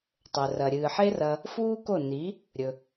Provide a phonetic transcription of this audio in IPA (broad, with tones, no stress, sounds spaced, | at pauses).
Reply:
tˤ ɵ˨ r ɐ˨ ɾʲ ɨː˨ ħ e˦ r ɐ˧ | f uː˦ k o˦˨ n i˨˦ | ɾʲ ɵ˧